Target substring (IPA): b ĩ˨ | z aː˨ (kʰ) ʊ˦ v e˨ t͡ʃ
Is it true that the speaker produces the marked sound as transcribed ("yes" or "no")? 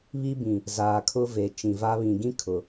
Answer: yes